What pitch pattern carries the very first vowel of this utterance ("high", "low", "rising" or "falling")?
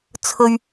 low